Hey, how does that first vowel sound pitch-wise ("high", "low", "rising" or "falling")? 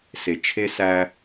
low